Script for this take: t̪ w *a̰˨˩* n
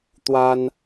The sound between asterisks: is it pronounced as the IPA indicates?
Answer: no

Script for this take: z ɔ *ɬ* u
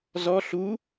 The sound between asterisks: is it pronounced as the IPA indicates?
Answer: yes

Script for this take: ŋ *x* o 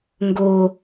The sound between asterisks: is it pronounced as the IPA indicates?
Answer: no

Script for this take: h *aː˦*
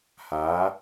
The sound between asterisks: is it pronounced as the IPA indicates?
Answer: no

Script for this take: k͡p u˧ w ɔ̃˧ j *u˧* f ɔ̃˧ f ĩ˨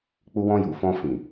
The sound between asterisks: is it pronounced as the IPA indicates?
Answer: no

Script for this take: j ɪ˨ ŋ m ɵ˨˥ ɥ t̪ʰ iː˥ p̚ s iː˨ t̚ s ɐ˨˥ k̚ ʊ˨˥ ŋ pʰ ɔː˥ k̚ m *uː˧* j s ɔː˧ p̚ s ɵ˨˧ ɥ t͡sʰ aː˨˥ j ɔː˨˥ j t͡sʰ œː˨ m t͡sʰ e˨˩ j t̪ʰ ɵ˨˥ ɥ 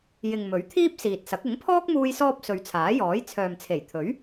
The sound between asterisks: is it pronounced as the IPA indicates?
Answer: yes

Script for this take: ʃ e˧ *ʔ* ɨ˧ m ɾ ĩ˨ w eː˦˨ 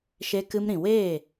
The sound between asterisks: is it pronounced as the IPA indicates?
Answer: no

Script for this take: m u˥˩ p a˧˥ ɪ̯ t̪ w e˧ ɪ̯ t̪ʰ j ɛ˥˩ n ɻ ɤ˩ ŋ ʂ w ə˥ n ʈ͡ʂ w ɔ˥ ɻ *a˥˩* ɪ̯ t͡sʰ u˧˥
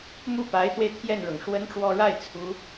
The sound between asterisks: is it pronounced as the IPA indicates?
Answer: yes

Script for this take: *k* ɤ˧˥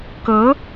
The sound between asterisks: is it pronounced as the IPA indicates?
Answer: yes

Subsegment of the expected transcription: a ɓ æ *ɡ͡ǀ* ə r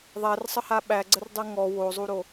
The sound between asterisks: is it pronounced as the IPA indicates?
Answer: yes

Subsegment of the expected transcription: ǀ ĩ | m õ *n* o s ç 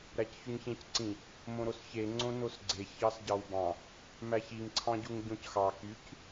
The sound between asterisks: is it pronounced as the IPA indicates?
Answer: no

